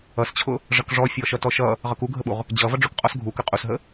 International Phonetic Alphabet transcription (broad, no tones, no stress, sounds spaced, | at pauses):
ʌ s t͡ɕʰ ʊ | ʐ ʌ k ʐ ɔ fʲ ɔ ʃ ʌ t ɔ ʃ ʌ | ʁ ʌ k u ɡʱ ə ɓ u ʁ | d͡ʑ ʌ v ʌ ɖ͡ʐ ʊ k qʼ ɔ s ɡʱ u k ə qʼ u s ɦ ə